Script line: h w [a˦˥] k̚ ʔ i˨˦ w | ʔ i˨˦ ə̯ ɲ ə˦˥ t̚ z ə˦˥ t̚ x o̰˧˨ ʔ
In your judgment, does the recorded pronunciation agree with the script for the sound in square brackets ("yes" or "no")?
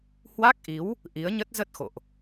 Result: yes